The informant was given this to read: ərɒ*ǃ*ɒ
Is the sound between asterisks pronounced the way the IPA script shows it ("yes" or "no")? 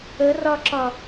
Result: no